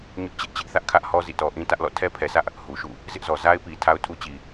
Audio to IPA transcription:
ɲʊ˦ʔt͡ɕɪ˦ʔ t͡ɕɪ˦ʔθä˦ʔkʰä˦ʔhɔ˦ zḭ˦˨tɔ˦ ʔĩ˦tä˦ʔ lɔ̰˦˨tʰɛ˦pʰɛ˨sä˦ʔ | hu˨ʃṵ˦˨ | zɪ˦ʔzɔ˨ za˦ɪ̯pi˨ tʰa˦ʊ̯tʰu˦t͡ɕi˨

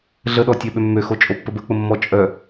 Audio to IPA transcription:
ɮəɗɔtʲœ ɓømːøxo t͡ʃʼopːəbə k͡pəmːɔ t͡ʃʼœ

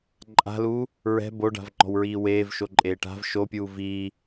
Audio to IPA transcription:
ǃʼa̤luː | ɹɛ̤ boɖa̤vŋ͡ǃɔ̤wɹiː weːvʃoǃʼeː ʈa̤v ʃopʲuː viː

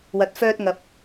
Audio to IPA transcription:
wɐ˨t̚fœː˧t̚ ŋɐ˨p̚

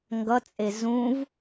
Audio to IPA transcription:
ŋɡʌt͡sʼe zũv

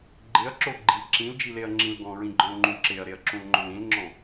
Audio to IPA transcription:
ɡ͡ǃɪɐ̯ǁo ɡ͡ǃi ǁĩld͡ʒileɐ̯ŋ͡ǁĩl ɡɔ̃ɹĩɡ͡ǃɔ̃lŋ͡ǃũ ǁeɐ̯ɾeɐ̯ǁũlŋ͡ǃõl ĩlŋ͡ǁɔ̃

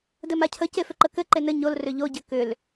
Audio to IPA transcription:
dɘmacʰə cefʏǃəkɘ ǃenɘ ɲol rʏʎo ɟɘkʏl

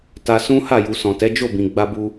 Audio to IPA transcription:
ta˧sũ˦ ha˦˨ju˨sɔ̃˨tɛ˨˦ d͡ʒo˦˨bĩ˨ ɡ͡ba˧bu˧

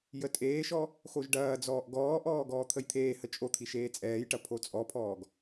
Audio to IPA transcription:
jətʼeːʃɔ | xoʒɖɐːd͡zɔːʔ ɡɔːʔɔː ɡɔːt̪ʰəjt̪ʰeːhə t͡ʃʼot̪ʰi ʃeːt͡sʼɛːjʈɐ pʰot͡sʼɔpʰɔːɡ

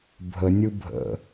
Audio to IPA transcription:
bʱənʲɯ bʱə̰

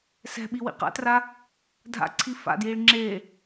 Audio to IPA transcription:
sɛ̤ɓi wḭqa̰tra | dʱa̰ǀʰi fa̰djiɭ ŋ͡ǁe

